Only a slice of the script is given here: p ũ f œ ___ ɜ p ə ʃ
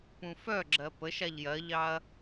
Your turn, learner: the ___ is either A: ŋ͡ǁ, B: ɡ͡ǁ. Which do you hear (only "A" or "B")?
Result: B